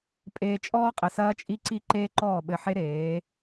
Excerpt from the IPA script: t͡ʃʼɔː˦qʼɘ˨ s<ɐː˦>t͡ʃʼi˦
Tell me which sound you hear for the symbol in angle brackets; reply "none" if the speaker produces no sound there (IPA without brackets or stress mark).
ɐː˦